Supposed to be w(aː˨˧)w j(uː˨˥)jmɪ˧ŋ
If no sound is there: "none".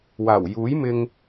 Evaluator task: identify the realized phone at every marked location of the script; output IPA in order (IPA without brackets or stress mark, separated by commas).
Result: aː˨˩, uː˨˥